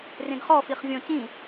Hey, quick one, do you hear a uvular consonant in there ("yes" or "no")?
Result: yes